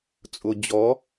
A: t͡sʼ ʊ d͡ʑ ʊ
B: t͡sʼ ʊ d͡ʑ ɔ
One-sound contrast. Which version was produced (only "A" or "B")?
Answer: B